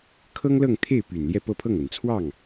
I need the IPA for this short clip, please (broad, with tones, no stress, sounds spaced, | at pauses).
kʰ ɤ˥ ŋ l ɤ˥˧ ŋ t̪ʰ e˥˩ ɪ̯ p y˨˩ n l j ɛ˥˧ p ɤ˥˧ pʰ ɤ˥˩ ŋ ə˨˩ n t͡sʰ w ɑ˥˩ ŋ